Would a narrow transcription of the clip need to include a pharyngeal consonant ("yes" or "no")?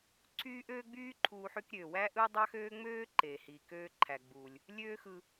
yes